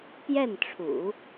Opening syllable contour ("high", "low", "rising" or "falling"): falling